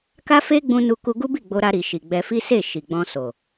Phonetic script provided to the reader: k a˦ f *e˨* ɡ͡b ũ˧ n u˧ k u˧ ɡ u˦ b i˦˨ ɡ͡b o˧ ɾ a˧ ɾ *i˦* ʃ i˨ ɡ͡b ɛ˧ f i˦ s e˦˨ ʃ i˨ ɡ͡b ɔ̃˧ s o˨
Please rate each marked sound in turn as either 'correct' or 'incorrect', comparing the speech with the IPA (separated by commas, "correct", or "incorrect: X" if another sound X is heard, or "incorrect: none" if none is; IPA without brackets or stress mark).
incorrect: e˦, incorrect: i˨